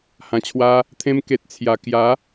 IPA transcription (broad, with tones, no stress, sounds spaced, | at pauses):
h ã˨˩ t͡ɕʰ w a˧ | t̪ʰ ẽ˧ m k e˨ t̚ t͡sʰ j a˨˩ k j a˨˦